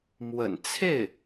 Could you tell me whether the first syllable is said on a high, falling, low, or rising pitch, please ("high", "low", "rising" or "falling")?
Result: low